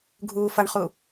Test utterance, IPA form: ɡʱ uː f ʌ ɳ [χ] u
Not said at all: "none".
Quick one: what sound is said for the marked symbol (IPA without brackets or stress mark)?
χ